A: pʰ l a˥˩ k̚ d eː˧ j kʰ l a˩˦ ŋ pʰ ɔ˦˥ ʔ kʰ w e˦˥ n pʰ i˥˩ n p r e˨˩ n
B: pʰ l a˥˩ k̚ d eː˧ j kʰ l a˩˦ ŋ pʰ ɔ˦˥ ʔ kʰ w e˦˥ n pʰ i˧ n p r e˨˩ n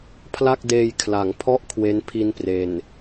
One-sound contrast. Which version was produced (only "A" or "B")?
B